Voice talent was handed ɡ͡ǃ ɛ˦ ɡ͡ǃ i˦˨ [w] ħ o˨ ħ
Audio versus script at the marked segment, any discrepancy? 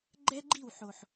no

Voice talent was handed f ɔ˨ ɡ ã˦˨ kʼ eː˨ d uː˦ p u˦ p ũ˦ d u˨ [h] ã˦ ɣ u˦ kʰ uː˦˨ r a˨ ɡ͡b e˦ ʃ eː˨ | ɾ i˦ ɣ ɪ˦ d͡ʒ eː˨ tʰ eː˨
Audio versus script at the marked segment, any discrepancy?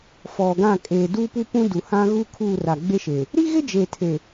no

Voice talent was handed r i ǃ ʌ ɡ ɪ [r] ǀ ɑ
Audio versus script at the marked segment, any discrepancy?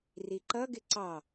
yes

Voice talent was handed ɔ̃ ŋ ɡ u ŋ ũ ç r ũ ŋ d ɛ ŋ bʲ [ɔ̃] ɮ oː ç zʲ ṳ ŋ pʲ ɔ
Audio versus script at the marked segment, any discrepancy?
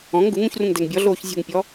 yes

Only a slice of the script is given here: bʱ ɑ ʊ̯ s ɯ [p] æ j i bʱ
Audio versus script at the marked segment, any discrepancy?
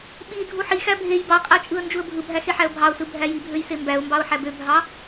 yes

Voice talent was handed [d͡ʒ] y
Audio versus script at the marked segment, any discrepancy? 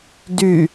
yes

